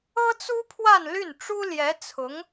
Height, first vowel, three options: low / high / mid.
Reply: mid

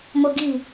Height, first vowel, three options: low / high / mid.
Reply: mid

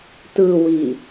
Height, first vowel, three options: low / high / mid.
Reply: high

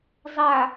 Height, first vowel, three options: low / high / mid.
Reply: low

